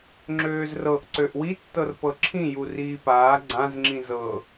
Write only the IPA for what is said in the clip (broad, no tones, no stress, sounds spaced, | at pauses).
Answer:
ŋ͡ǁ øː z r ɤ ʔ ǀ ø ʔ w i tː ɤ r p ɤ ǁʰ ĩ j u r iː p aː ɡ͡ǀ ã z ŋ͡ǁ ĩ z ɤ